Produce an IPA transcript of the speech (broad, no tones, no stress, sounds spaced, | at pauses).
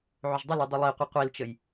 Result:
ʕ ʏ ʒ dˤ ə l i dˤ ʏ lˠ i qʷ i qʷ i l t͡ʃ ə j